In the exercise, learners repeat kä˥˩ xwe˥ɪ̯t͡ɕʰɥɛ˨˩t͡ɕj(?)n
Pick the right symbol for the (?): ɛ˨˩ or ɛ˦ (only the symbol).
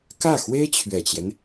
ɛ˦